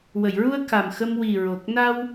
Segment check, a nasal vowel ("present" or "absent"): absent